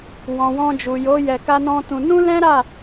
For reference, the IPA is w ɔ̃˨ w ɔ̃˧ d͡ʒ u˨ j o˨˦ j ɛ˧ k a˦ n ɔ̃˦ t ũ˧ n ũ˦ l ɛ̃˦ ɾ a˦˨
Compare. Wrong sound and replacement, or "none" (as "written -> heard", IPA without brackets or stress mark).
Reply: none